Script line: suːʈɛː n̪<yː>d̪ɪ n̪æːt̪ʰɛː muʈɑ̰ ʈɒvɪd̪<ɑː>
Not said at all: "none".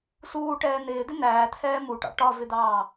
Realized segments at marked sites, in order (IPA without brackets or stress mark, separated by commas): ɪː, ɑː